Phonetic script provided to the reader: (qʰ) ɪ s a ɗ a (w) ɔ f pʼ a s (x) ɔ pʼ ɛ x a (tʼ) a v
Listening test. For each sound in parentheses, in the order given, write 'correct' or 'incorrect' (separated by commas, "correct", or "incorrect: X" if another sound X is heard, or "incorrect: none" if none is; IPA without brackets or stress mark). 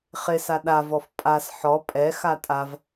incorrect: χ, incorrect: v, incorrect: ħ, correct